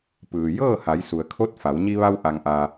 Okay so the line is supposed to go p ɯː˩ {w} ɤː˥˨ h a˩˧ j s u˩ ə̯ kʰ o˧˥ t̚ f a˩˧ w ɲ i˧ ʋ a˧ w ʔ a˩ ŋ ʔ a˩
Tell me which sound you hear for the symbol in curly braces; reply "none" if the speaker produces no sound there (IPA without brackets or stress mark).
j